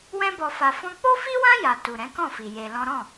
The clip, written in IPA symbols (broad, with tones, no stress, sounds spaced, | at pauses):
w ɛ̃˦ b ɔ˧ f a˧ f ɔ̃˧ k͡p o˦ f i˦ w ã˦ j a˧ t u˨ ɾ ɛ̃˨˦ k ɔ̃˦˨ f i˨ j e˧ l ɔ̃˦ ɾ ɔ̃˦˨